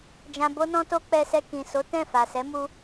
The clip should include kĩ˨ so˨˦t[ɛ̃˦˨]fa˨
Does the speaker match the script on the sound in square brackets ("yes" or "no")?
yes